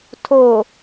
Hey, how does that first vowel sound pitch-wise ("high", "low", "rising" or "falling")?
low